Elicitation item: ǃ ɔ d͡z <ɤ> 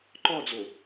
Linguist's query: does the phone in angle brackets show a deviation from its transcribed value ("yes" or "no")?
yes